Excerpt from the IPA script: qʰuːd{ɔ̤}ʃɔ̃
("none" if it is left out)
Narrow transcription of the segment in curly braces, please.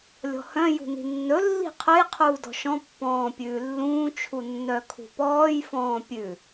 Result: ɔ̤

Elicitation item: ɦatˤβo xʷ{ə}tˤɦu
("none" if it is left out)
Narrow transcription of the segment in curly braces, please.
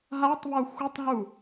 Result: ə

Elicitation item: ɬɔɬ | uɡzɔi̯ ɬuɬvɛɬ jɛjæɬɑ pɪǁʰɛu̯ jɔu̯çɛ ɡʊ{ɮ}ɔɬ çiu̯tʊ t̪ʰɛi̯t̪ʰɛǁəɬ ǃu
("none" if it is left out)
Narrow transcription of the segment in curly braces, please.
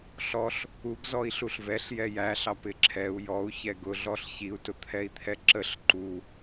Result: ɮ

